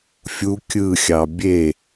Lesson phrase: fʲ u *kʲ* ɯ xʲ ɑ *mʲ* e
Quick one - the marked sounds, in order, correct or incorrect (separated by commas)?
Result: correct, incorrect